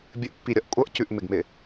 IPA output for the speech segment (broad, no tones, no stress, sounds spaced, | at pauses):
bʲ ɘ ʔ pː i ɾʲ ʌ ʔ kʷʼ ʌ ʔ c ʉ ʔ m ɪ ɡ m ɪ